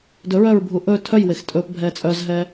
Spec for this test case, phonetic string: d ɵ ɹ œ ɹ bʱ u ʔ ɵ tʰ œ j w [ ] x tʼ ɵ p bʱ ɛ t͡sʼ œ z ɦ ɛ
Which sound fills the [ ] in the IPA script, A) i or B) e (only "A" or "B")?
B